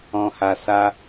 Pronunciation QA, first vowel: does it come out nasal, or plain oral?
nasal